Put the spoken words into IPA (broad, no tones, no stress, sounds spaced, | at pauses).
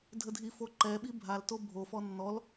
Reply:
dʱ ə dʱ i f o ǃ ɛ ɓ i bʱ a l t o bʱ o f ɔ nː ɔ l